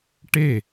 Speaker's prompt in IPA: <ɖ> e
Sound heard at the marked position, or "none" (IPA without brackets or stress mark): ʈ